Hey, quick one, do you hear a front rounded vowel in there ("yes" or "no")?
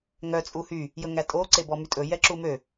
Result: yes